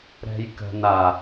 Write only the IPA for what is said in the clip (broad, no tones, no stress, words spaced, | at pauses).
ɾɛ̤jkə̤n a